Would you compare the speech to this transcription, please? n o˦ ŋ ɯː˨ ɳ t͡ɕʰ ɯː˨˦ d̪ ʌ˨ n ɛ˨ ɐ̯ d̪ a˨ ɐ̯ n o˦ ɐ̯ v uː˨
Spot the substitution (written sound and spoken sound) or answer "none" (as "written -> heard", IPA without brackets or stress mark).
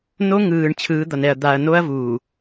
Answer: none